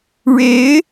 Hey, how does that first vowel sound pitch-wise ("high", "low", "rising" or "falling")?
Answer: rising